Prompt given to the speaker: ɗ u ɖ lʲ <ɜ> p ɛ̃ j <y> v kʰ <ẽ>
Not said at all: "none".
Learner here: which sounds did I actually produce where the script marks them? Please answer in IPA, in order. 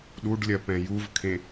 ɜ, u, ẽ

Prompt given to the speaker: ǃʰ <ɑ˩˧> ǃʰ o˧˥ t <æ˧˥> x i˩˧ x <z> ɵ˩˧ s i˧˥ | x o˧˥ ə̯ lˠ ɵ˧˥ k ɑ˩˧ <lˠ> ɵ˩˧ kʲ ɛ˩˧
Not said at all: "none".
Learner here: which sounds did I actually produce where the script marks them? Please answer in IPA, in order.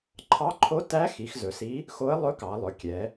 ɑ˧˥, æ˧˥, z, lˠ

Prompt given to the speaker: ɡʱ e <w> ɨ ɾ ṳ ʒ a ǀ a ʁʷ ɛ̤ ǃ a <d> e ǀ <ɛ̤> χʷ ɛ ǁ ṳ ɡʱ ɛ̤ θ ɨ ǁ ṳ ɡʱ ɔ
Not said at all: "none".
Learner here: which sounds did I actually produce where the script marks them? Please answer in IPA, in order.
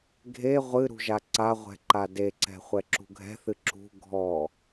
ʁʷ, d, ɛ̤

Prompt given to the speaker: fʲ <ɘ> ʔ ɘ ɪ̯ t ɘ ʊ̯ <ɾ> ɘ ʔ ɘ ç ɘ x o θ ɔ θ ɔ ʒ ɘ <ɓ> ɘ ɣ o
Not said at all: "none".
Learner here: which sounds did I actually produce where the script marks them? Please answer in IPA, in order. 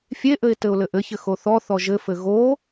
e, l, f

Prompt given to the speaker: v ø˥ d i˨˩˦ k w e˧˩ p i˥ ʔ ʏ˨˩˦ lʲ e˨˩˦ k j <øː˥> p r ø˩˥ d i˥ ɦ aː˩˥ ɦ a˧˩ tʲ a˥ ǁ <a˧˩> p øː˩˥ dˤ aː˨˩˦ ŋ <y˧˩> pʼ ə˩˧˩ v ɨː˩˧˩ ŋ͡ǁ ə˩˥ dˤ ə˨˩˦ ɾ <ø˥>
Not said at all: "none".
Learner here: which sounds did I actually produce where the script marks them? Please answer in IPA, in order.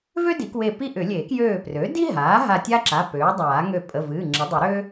øː˧˩, a˩˧˩, ø˧˩, ø˥

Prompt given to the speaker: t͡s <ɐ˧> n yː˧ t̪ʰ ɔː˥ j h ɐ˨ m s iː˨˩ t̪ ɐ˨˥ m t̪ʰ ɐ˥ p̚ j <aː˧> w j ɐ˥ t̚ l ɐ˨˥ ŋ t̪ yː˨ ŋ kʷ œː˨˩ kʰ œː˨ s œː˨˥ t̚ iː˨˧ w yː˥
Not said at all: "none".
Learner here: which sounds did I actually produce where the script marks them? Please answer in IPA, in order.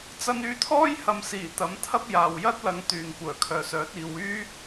ɐ˧, aː˨

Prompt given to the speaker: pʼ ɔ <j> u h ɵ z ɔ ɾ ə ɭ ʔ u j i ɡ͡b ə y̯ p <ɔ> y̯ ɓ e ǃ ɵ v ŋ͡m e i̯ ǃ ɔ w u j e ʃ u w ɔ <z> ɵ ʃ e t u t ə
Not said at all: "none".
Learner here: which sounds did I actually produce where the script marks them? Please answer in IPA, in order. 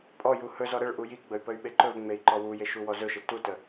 j, ə, z

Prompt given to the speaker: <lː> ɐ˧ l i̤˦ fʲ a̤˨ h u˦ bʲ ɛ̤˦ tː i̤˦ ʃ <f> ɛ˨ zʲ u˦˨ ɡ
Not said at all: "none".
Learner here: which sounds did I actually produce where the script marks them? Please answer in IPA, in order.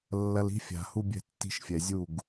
lː, fʲ

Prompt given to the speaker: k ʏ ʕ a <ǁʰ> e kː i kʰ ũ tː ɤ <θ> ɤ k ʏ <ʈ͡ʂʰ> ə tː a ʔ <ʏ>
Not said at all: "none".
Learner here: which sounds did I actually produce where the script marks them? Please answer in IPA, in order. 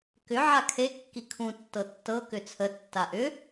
kʰ, tː, t͡sʰ, ʏ

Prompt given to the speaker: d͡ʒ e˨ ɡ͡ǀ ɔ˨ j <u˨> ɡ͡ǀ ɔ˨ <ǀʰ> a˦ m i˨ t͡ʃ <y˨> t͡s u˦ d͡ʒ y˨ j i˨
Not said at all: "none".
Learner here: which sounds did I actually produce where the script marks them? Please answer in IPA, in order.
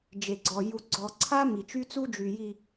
u˨, ǀʰ, y˦

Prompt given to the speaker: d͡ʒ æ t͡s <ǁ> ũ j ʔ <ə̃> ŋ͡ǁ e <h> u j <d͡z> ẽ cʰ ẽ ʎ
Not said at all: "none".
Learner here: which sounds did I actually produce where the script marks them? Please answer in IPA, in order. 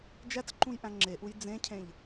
ǃ, æ̃, ʔ, d͡z

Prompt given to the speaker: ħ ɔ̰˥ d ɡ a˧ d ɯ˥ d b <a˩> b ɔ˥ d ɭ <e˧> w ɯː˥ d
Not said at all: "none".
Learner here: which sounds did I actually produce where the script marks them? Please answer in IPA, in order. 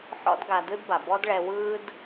a˩, ɛ˧

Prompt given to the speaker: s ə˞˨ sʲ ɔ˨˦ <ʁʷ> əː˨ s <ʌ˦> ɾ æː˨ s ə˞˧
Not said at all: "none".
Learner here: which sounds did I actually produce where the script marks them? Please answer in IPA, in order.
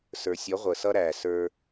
ʁʷ, ʌ˦

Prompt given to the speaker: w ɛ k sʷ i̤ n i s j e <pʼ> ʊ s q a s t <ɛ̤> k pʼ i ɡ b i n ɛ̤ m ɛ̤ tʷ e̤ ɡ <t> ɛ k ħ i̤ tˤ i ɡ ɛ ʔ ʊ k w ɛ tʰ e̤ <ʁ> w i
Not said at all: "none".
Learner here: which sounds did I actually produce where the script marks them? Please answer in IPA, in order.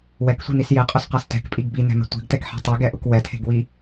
qʼ, ɛ̤, t, ɡ

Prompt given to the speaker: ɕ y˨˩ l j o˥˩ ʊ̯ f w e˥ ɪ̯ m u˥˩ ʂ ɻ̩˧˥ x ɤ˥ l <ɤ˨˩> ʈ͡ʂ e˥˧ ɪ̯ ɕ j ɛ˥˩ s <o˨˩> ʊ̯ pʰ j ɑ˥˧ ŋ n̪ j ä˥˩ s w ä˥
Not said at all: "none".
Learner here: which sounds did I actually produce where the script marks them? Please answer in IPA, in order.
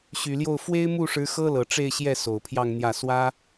ɤ˨˩, o˨˩

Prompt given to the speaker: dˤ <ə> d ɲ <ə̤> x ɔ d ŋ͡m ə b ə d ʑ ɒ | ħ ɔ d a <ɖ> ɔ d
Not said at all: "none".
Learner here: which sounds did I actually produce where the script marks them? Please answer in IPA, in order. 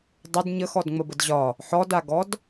ə, ə, ɡ

